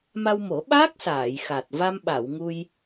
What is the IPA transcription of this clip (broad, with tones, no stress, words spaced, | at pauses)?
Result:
ma˧wmo˨˩˦ɓa˦˥k̚ saː˨˩˨jxa˨˩t̚ va˧mɓa˨˩˨w ŋu˧j